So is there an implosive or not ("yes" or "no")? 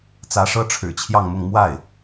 no